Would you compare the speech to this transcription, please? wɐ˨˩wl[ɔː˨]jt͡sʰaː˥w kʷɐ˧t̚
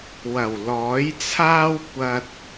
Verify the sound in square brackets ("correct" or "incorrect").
incorrect